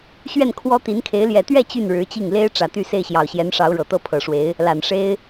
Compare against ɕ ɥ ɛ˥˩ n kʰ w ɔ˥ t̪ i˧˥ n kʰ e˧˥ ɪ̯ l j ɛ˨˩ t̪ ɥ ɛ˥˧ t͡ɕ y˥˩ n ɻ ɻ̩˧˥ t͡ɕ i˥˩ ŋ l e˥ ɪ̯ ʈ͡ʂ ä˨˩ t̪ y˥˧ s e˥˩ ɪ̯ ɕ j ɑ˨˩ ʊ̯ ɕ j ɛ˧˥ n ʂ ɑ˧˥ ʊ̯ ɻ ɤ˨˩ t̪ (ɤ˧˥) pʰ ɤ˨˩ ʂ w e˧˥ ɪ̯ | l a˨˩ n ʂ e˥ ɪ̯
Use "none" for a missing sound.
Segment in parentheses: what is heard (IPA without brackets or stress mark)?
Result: ɤ˥